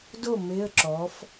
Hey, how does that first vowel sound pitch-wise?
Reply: falling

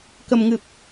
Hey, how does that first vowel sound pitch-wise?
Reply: low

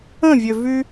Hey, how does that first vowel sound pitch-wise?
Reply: falling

